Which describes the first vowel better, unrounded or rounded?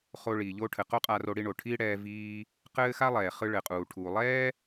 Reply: rounded